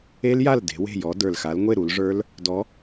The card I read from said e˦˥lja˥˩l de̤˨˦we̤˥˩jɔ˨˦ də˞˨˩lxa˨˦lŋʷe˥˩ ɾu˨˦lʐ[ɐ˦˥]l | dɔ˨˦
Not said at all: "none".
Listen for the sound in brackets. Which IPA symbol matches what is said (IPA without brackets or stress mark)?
ə˞˦˥